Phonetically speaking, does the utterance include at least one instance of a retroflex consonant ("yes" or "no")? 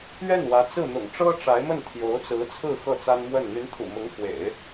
yes